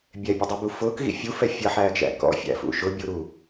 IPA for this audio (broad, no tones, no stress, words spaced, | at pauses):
bʲɛbʲʊdˤibu fʊːkɣḭ fʲufɛ fʲʌħæːɡʒæ̰ kɔ̰fʲæ̰fṵ ʃʊbʲuɾu